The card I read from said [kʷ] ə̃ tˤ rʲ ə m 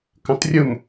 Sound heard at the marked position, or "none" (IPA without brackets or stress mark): k